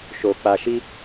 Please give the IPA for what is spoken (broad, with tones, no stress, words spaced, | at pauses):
ʃo˧ k͡pa˧ʃi˦